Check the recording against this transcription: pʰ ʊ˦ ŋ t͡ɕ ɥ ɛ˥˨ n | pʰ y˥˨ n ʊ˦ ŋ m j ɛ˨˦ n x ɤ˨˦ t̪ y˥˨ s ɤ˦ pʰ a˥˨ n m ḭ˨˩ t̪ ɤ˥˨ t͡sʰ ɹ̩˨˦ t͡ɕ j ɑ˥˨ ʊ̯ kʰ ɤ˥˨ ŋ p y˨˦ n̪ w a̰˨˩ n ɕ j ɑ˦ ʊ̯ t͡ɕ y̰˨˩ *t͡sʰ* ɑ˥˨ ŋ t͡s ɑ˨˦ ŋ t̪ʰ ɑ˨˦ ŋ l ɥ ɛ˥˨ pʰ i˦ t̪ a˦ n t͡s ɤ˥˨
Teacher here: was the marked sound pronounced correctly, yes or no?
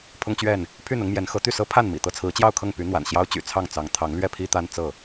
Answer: yes